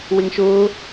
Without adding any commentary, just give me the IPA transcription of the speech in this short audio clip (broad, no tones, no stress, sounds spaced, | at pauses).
w ɪ ŋ ʃ ʊː